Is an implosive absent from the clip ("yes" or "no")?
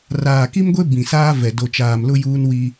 yes